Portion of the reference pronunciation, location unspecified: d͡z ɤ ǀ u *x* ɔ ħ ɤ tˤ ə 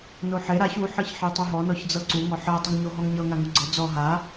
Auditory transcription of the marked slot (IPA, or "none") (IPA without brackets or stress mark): ŋ